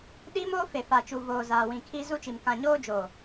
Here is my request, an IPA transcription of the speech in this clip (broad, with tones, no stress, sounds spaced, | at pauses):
ɗ iː˦ m oː˦ f e˨ f a˨ t͡ʃ u˨ v oː˨ z aː˨ w ĩ˨ kʰ i˦ z u˦ t͡ʃ i˨ m k ã˨ ɲ oː˦ d͡ʒ oː˨